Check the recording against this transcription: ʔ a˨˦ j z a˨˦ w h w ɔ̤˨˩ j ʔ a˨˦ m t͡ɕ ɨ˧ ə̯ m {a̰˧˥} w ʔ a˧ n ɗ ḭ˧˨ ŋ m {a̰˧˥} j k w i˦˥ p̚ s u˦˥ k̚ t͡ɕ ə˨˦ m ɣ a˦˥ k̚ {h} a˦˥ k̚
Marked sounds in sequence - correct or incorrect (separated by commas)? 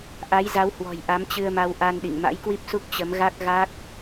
incorrect, correct, incorrect